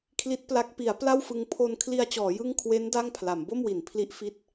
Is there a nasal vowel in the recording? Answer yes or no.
no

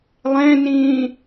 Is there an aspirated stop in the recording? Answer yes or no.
no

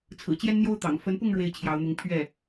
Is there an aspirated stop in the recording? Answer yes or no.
yes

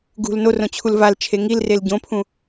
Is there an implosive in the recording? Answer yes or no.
no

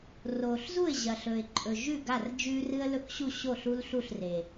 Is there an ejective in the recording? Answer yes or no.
yes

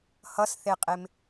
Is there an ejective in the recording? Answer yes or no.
yes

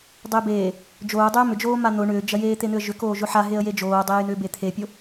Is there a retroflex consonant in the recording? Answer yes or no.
yes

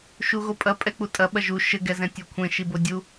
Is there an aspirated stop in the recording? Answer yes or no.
yes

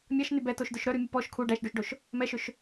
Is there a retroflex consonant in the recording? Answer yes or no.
yes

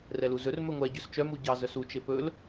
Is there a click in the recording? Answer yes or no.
no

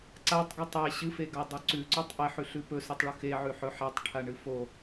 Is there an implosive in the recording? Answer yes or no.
no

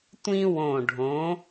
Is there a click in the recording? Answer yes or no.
no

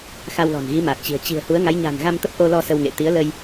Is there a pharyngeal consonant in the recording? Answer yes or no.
no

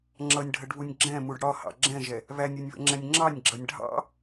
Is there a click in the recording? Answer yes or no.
yes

